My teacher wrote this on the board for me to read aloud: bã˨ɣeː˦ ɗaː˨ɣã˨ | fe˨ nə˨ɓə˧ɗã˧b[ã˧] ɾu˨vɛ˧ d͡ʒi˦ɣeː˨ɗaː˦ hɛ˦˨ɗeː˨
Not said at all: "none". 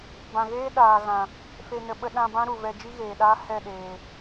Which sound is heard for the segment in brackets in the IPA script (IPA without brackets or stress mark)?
ã˦